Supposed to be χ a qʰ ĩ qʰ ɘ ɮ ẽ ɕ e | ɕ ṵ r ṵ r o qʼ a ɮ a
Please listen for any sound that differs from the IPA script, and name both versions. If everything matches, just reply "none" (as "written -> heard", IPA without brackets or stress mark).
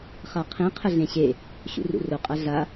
none